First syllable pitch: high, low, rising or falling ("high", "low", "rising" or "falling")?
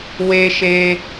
high